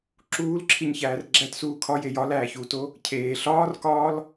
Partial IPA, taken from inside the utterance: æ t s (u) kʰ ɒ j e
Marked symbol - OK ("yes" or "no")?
no